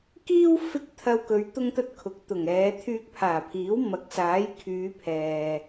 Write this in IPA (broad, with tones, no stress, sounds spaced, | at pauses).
k iː˥ w f ɪ˥ k̚ t̪ʰ ɐ˧ w k ɵ˨˧ ɥ t̪ ʊ˥ ŋ t̪ ɐ˥ t̚ kʰ ʊ˨ k̚ t̪ ʊ˨˩ ŋ ɛː˨˧ t̪ʰ yː˧ k̚ pʰ aː˨˩ pʰ iː˨˥ w m ɐ˨˥ k̚ s aː˨˥ j kʰ yː˨˧ pʰ ɛː˨